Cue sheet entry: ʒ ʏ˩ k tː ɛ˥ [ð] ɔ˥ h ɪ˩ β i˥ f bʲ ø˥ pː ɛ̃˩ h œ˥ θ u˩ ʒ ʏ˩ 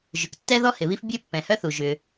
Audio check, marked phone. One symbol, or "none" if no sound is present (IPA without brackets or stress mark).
ð